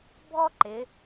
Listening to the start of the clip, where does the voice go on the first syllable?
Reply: high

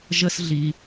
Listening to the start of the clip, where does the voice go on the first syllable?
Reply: high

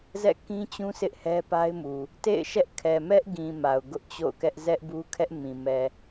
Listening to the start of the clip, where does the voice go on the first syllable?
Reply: falling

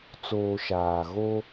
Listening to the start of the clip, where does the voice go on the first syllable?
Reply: low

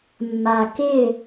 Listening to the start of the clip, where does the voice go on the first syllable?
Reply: low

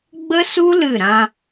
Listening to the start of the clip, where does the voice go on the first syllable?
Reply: high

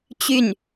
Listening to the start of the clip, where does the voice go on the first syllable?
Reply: falling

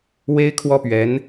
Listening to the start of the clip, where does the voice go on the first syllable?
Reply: high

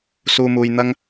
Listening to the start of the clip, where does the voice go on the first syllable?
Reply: low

